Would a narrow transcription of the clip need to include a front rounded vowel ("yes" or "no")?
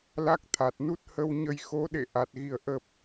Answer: no